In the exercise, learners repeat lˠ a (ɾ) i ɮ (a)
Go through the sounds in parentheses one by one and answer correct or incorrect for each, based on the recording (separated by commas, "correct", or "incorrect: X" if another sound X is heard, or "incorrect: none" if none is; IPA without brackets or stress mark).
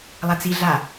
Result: incorrect: t͡s, correct